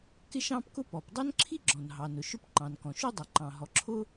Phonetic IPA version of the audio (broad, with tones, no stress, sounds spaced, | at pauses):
k ɪ˥ ʃ ɑ̃˥ p k ʊ˥ p ɔ˩ p dˤ ʌ˥ n ǁʰ i˥ ɡ͡ǁ ɔ̃˩ n ɦ ɑ˩ n ʊ˩ ʃ ʊ˥ p ǃ ɑ̃˩ n k ɔ̃˩ ʃ u˥ dˤ ʌ˩ ǃ ɑ̃˩ ɦ ɔ˩ ǁʰ ʊ˥